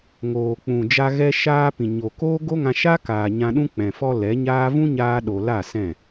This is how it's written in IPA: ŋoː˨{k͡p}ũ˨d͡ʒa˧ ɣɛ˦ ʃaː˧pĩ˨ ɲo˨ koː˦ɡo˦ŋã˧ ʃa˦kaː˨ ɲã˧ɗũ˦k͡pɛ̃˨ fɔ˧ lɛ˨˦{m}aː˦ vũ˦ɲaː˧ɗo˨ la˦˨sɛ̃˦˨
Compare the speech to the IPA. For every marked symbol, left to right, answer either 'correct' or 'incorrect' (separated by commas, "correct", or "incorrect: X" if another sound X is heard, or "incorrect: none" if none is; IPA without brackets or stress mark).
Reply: correct, incorrect: ɲ